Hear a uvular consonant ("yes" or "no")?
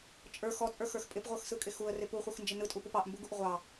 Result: yes